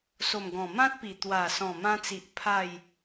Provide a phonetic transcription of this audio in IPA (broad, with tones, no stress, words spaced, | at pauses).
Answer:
so˨˩mɡɔ̃˨˩ mã˦t̚pi˨˩ t̪wa˨˩sɔ̃˨˩mã˧t͡si˨ʔ pʰa˥˧j